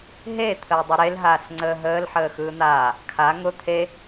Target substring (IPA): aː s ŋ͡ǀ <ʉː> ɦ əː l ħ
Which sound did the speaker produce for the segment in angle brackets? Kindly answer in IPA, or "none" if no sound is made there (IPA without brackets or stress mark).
əː